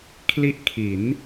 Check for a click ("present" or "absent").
absent